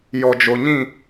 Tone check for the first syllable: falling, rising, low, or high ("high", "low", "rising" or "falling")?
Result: low